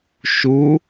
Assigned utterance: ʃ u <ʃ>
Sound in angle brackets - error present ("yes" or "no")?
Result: yes